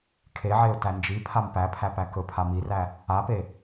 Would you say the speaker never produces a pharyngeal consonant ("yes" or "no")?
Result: no